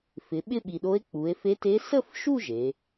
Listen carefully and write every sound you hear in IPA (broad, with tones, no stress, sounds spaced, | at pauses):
f ɪ˩˧ ɓ ɪ˥˧ ɓ i˨˩ ɗ o˧˥ e̯ k͡p u˩˧ e̯ f e˧˥ t e˧˥ s ə˥˧ f ʃ u˥˧ ʒ e˩˧